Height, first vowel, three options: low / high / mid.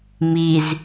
high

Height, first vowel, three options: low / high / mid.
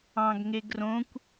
low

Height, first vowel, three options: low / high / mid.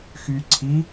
high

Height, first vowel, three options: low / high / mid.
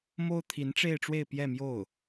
mid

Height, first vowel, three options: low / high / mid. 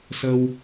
mid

